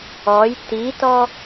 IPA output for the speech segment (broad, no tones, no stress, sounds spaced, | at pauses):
ɔ j t i t ɔ